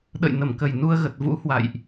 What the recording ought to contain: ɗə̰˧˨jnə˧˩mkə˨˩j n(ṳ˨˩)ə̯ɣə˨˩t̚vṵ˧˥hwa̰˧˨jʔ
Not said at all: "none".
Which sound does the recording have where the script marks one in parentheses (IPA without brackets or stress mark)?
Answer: u˧